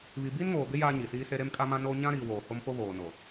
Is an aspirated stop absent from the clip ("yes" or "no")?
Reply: yes